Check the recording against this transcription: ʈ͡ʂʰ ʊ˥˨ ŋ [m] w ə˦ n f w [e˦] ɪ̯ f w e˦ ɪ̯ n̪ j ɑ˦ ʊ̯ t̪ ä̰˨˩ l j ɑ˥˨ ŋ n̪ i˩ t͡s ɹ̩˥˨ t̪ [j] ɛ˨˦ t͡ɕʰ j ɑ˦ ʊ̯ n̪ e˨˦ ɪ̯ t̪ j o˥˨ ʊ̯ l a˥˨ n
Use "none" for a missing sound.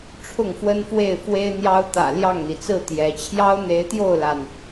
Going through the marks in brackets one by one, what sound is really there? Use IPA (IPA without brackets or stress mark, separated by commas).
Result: f, e˥˨, j